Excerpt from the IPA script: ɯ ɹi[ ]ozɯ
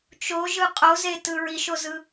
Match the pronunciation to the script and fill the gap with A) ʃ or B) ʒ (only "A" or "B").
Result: A